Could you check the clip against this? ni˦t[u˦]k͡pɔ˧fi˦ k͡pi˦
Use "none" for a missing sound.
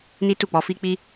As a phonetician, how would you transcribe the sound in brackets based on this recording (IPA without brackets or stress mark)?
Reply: u˦˨